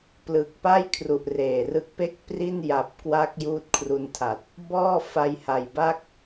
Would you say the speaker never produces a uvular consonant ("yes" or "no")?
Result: yes